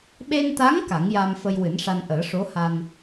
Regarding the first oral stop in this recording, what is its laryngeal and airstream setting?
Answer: implosive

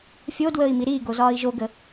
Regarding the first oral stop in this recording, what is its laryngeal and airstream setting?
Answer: plain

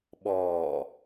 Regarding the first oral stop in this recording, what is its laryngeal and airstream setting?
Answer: implosive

